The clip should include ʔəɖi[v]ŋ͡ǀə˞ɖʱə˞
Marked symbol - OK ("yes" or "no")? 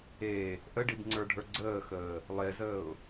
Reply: no